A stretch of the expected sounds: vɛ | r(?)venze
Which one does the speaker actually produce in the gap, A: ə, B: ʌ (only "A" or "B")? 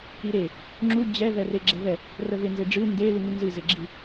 A